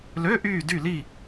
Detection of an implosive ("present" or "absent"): absent